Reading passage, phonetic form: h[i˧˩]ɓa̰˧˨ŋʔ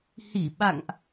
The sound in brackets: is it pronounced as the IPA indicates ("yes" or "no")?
yes